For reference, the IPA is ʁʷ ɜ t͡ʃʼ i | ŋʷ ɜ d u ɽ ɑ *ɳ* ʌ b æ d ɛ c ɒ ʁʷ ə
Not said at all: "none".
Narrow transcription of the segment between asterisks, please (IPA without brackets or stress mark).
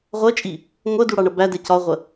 ɳ